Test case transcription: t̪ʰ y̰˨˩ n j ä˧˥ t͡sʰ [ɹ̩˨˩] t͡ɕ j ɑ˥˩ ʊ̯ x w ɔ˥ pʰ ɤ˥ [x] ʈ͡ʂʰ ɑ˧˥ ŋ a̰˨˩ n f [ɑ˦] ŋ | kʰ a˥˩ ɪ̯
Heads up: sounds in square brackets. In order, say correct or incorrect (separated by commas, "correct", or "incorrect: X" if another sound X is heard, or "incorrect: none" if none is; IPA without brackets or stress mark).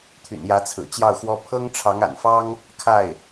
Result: correct, incorrect: ŋ, incorrect: ɑ˥